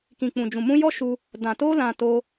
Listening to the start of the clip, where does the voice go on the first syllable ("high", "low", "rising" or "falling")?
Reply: low